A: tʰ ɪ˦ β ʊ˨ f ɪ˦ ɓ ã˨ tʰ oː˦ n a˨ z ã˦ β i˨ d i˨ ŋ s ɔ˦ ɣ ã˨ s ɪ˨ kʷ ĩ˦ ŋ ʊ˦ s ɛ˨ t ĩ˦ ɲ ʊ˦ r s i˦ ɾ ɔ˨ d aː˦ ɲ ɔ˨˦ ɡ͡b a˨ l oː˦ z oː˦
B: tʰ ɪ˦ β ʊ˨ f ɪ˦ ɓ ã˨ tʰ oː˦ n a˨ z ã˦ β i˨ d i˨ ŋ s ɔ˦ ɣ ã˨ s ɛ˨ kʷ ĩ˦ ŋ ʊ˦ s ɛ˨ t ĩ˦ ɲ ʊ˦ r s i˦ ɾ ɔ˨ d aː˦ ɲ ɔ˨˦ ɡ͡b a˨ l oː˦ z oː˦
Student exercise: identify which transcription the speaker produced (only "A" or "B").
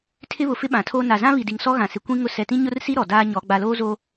A